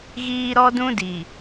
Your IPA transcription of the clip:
ɣ iː˦ ɾ ɔ˦ d ũ˦ d i˨

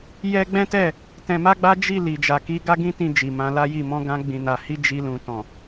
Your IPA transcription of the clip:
j ɛ˦ ɡ͡b ɛ̃˦ t ɛ˦˨ | t ɛ̃˧ m a˦ ɡ͡b a˦ d͡ʒ i˦˨ l i˨ d͡ʒ a˨ k i˨˦ ɡ a˦ ɡ ĩ˦ t ĩ˧ d͡ʒ i˨ m ã˧ l a˦ j i˦˨ m ɔ̃˧ ɡ ã˧ ɡ͡b ĩ˨ n a˨ h i˧ d͡ʒ i˧ l ũ˨ t ɔ̃˨

